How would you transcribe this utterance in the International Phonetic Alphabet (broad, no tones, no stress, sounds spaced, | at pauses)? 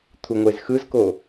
t̪ʰ u ŋʷ e z x ɯ z k o